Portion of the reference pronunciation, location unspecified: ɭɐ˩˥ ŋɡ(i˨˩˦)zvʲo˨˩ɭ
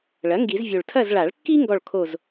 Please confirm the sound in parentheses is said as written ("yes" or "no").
yes